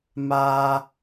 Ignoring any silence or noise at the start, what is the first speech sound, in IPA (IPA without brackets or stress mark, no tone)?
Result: m